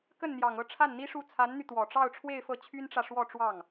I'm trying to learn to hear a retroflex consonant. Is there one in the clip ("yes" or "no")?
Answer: yes